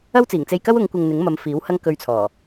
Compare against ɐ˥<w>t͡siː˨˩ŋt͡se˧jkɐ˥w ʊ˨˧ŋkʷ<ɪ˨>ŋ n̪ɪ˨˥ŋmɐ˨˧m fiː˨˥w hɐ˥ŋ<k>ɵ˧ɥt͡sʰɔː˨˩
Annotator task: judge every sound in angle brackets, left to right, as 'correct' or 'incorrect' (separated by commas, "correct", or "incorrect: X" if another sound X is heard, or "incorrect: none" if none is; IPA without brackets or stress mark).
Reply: correct, correct, correct